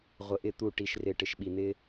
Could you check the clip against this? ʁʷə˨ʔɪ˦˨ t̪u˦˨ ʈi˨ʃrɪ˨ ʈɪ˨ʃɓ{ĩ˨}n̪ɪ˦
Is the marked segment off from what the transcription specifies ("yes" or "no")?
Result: yes